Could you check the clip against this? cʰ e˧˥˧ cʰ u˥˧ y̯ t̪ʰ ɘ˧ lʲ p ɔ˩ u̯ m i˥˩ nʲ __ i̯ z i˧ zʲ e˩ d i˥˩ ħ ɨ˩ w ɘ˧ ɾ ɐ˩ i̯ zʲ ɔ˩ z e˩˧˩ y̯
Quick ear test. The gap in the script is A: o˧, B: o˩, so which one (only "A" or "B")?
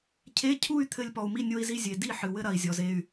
A